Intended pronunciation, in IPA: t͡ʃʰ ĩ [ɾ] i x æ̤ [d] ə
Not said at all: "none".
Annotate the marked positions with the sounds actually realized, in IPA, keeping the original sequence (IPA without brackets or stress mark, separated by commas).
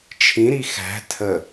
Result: ɾ, tʰ